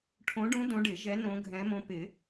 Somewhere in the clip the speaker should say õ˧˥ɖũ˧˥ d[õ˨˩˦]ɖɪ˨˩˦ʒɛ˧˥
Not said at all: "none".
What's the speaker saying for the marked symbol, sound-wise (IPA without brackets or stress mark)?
õ˧˥